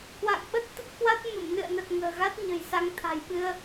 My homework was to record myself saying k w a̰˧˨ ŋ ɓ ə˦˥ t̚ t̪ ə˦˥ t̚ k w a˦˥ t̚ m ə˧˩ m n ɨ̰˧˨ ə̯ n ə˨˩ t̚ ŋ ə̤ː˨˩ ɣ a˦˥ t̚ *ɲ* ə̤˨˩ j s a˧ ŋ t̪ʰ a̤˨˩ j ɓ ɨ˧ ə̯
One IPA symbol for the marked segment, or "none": ɲ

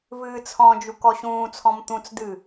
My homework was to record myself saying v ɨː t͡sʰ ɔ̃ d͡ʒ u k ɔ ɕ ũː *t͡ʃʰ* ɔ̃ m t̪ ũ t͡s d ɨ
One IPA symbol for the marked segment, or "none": t͡sʰ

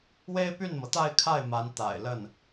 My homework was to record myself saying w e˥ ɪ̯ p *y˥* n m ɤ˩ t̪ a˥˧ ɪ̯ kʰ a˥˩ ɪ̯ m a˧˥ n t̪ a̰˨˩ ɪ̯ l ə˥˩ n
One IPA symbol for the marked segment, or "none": y˥˩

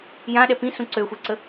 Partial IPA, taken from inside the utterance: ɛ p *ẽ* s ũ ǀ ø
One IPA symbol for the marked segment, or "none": ĩ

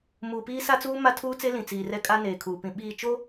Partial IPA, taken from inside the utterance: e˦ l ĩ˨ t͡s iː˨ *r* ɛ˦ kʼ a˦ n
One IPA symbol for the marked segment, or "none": r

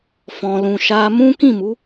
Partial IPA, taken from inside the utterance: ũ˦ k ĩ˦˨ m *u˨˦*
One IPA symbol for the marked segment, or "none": u˨˦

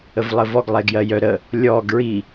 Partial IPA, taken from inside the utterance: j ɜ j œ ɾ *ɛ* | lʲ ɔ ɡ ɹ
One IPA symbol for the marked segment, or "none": ə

